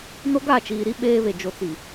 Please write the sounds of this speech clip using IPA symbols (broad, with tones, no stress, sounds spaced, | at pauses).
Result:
n o˦ ɡ a˦˨ t͡ʃ iː˨ ɾ i˦ ɓ eː˦ β e˨ d͡ʒ o˨ t͡s i˨